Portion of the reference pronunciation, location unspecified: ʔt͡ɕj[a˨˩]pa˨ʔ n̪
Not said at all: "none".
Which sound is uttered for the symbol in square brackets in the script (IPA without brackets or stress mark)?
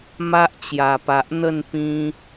a˨˩